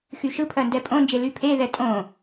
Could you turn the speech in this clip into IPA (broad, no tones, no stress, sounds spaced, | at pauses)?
x y ʃ ɯ pʰ ɜ n d ɛ pʼ õ n d͡ʒ e l y pʰ e ð ɛ tʼ õ